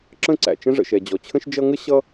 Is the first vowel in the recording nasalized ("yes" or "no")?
yes